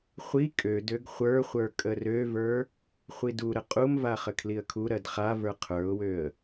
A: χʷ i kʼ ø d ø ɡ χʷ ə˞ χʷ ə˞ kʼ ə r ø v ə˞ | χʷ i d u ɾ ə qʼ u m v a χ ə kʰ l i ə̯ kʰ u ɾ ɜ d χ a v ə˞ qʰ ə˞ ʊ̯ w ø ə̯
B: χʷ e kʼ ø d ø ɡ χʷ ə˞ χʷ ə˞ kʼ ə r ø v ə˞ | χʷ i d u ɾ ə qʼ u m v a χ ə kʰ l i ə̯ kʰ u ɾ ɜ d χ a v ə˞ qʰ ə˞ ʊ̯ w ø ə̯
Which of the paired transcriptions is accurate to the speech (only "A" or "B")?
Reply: A